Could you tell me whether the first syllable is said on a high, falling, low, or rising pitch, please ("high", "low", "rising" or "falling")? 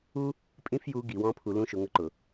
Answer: high